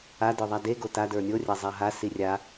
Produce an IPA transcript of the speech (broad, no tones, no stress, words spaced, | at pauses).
a də˞ðˤade ɡota də˞nʲo rʲazˤaɦa sirʲa